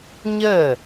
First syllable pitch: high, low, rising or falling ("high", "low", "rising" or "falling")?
falling